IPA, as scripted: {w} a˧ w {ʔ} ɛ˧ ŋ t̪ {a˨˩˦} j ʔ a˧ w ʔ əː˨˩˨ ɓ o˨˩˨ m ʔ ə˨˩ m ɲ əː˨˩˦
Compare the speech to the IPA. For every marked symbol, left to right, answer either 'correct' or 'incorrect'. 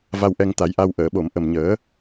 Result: incorrect: v, correct, correct

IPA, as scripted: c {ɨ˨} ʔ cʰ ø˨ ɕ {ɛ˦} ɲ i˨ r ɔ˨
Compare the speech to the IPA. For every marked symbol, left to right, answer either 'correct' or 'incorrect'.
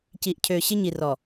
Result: incorrect: i˨, incorrect: ɪ˦

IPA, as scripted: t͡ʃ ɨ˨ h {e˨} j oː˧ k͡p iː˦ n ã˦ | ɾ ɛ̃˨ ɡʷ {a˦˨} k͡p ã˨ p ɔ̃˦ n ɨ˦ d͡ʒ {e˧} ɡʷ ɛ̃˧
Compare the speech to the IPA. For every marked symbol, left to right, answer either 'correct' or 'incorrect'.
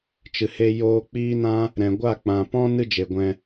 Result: incorrect: e˧, correct, incorrect: e˨

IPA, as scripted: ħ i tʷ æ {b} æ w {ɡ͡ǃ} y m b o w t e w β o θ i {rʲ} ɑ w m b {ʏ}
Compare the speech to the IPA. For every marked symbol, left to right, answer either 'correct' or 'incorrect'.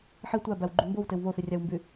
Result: correct, correct, correct, incorrect: y

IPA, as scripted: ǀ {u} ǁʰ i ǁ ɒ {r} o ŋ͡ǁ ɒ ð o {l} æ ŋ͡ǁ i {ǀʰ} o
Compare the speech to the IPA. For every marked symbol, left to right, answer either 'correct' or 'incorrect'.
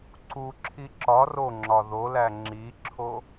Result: correct, correct, correct, incorrect: ǁʰ

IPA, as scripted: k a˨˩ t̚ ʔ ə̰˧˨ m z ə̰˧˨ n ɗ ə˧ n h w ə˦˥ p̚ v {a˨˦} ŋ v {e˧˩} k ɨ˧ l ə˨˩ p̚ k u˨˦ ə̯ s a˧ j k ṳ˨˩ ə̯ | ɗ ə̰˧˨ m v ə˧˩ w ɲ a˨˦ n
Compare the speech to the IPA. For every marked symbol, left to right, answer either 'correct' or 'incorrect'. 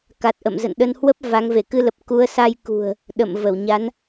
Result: correct, correct

